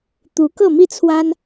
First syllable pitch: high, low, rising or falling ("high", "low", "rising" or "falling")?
rising